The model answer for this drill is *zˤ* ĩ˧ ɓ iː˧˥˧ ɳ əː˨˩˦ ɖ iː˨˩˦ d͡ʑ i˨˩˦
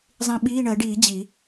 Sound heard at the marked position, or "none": zˤ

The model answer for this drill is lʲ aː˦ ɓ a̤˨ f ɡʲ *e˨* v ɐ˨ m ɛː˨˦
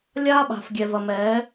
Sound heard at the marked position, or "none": ɛ˨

